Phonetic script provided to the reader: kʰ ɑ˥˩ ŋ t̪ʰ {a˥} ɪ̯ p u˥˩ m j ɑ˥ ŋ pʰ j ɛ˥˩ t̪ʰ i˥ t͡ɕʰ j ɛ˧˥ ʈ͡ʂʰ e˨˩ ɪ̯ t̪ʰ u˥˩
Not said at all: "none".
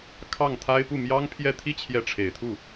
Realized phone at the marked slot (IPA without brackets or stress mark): a˥